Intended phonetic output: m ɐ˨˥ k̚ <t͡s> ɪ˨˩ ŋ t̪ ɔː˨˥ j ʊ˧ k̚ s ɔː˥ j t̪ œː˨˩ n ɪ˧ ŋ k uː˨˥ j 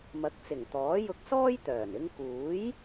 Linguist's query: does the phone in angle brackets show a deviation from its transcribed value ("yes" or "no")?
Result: no